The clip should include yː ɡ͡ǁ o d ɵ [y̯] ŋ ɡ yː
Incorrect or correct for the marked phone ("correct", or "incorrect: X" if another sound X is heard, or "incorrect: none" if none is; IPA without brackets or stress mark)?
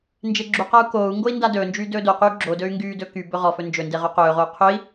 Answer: correct